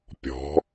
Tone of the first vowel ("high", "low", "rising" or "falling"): rising